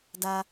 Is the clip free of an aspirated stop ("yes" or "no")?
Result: yes